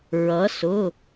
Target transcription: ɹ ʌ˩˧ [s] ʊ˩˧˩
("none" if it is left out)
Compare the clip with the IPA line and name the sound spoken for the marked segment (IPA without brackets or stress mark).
s